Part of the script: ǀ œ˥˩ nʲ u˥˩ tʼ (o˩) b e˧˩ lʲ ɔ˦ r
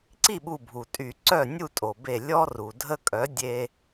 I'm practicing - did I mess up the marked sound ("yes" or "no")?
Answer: no